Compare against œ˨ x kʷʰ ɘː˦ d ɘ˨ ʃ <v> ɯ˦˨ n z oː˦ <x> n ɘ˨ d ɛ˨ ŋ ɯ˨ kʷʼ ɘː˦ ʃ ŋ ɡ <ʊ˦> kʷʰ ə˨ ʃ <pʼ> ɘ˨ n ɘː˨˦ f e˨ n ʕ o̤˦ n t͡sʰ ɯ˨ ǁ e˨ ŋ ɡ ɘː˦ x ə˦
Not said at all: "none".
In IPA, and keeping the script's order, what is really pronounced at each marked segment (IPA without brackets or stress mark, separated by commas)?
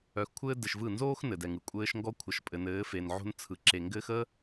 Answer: v, x, ɔ˦, pʼ